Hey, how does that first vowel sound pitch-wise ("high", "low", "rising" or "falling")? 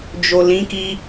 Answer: low